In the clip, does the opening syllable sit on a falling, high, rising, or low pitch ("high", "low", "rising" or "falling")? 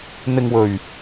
low